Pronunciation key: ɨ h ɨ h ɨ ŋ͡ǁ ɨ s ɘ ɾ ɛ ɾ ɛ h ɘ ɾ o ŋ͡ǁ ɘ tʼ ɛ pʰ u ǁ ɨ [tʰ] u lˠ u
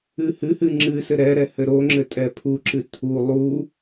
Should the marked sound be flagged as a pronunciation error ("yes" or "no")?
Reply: no